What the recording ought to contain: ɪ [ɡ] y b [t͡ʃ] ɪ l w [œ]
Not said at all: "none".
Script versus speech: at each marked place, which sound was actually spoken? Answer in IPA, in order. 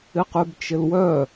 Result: q, t͡ʃ, œ

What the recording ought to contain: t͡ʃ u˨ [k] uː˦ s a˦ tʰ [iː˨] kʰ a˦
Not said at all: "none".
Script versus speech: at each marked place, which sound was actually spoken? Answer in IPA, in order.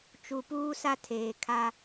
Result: p, eː˨

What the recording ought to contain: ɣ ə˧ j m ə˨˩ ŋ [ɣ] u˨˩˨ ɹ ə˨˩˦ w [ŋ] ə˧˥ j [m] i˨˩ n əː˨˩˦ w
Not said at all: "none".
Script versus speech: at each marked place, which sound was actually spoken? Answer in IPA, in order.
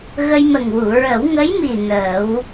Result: w, ŋ, m

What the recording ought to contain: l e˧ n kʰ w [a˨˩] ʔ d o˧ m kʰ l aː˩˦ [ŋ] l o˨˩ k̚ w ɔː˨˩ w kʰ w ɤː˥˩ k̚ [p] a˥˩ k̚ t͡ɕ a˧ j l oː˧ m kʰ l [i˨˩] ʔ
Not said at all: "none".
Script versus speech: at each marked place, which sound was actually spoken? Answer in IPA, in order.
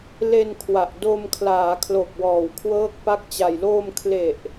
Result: a˨˩, kʰ, p, e˨˩

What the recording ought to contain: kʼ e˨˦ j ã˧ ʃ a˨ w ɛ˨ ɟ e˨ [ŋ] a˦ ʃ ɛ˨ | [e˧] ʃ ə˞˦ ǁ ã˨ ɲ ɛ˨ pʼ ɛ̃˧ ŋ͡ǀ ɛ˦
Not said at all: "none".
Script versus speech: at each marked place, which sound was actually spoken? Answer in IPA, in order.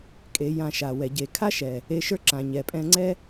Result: kʰ, e˧

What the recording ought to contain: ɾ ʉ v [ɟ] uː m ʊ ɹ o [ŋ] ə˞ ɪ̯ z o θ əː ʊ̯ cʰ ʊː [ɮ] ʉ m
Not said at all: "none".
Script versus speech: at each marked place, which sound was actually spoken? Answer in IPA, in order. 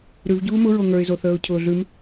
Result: ɟ, ŋ, ɮ

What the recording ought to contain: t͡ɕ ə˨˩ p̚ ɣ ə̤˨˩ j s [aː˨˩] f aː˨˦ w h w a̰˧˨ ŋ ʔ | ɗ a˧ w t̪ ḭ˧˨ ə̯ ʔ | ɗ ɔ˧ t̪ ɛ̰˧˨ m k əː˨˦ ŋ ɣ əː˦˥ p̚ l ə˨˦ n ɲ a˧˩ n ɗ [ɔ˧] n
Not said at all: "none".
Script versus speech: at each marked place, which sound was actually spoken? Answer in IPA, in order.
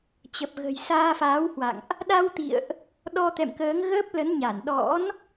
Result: aː˧, ɔ̰˧˥

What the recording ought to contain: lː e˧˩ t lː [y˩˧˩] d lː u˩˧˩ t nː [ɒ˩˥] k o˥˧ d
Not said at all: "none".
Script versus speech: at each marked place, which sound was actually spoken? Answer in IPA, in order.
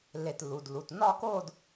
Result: u˩˧˩, ɒ˥˧

